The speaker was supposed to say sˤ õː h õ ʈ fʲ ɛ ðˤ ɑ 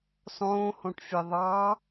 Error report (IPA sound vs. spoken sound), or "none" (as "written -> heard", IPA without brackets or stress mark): none